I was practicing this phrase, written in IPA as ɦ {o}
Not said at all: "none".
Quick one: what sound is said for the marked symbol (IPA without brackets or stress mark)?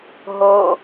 o